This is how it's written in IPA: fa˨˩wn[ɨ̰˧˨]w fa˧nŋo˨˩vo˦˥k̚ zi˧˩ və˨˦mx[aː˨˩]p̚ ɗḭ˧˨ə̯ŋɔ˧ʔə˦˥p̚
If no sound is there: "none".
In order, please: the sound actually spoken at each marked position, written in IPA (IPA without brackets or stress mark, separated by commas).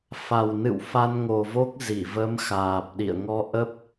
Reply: ɨ̰˧˨, aː˨˩